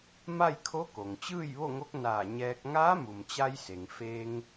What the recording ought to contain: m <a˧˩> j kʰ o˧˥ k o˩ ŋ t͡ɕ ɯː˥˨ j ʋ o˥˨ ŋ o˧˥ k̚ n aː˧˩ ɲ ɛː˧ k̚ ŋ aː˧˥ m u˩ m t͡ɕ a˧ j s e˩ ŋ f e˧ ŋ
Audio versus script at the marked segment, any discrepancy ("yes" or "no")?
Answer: yes